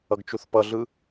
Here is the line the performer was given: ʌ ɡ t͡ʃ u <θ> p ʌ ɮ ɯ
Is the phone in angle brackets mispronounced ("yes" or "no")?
no